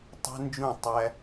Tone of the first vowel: high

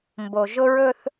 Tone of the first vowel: low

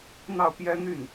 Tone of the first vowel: falling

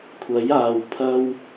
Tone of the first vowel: rising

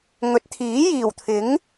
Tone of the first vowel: rising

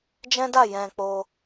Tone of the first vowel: high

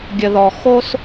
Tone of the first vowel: low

